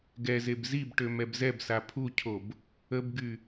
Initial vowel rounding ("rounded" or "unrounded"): unrounded